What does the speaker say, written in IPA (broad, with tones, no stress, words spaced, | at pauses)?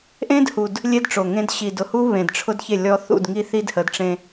ʔẽ˦dhu˨d | lʲe˦dʈ͡ʂo˨ŋẽ˦d ɕi˨dʊ˨hu˦ βẽ˨dʈ͡ʂʰʊ˦dçe˦˨lʲɔ˦ θṵ˦˨d ŋi˦θi˦dhə˨˦d ʈ͡ʂẽ˦